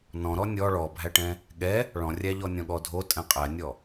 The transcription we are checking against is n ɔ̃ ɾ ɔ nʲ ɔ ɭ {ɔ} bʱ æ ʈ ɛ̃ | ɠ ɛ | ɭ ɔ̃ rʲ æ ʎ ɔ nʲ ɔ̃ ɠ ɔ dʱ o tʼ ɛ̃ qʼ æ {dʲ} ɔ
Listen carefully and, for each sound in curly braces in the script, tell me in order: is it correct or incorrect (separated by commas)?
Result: correct, incorrect